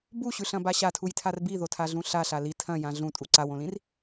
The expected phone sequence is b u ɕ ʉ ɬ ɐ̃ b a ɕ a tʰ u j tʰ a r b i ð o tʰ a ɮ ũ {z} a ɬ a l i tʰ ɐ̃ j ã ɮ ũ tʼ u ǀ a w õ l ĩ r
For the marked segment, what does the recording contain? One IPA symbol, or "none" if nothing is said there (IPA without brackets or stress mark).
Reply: ɬ